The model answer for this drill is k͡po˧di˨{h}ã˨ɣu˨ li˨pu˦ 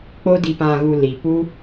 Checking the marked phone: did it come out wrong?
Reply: yes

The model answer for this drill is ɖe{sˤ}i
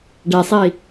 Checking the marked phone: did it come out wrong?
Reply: no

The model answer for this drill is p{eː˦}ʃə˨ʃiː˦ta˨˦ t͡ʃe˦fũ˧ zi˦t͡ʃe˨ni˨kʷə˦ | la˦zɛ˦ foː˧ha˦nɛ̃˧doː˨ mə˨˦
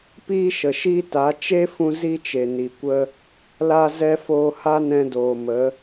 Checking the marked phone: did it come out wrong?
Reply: yes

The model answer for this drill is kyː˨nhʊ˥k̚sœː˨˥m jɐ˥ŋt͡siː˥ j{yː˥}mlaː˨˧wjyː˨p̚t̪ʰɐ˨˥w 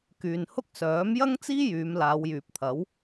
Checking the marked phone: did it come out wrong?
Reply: yes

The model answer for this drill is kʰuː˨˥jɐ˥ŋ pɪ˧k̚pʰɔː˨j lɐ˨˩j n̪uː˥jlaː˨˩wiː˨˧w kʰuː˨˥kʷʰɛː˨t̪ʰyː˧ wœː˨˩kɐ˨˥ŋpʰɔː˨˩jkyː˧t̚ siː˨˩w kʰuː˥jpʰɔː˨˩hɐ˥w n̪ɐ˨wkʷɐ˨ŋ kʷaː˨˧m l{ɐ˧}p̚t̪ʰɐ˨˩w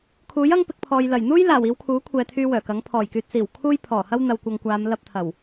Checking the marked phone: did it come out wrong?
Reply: yes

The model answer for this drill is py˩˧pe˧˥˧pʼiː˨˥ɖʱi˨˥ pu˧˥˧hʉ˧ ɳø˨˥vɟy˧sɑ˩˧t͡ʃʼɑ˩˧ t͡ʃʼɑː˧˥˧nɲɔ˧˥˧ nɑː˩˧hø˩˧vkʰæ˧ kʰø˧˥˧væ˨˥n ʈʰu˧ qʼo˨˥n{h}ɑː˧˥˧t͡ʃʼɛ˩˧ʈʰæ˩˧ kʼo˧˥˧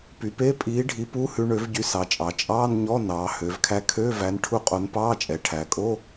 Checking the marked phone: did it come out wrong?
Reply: yes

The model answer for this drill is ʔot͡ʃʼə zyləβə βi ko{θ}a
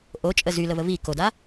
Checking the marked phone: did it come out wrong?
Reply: yes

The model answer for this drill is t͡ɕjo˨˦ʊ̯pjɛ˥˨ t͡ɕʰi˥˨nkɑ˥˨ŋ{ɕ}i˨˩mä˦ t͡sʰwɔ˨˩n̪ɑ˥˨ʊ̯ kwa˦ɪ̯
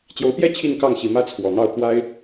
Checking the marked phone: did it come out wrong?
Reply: no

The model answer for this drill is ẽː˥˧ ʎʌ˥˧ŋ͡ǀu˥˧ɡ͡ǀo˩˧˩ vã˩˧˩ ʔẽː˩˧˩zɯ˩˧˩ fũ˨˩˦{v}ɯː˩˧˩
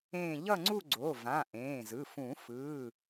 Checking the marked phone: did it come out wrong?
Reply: yes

